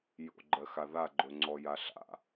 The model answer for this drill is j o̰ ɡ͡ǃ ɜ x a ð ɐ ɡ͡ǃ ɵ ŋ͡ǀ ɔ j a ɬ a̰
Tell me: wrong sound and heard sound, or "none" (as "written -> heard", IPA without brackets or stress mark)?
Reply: ɐ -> a